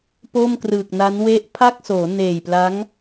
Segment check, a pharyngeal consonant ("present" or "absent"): absent